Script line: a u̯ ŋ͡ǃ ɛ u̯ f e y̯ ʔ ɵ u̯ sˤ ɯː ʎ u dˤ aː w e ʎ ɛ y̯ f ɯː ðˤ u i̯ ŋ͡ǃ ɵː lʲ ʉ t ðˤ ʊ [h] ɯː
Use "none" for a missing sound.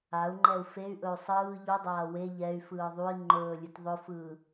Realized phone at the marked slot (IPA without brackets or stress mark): f